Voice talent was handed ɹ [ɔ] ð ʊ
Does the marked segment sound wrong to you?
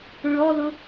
no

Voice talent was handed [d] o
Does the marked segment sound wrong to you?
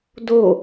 no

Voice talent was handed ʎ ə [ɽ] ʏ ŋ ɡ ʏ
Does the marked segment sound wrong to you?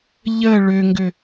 yes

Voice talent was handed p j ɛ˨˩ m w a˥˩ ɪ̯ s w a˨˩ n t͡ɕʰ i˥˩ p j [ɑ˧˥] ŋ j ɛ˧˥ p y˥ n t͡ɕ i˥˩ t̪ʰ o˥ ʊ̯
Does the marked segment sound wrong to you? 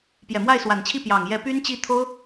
yes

